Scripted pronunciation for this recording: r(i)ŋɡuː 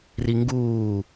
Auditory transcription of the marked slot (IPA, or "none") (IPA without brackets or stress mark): i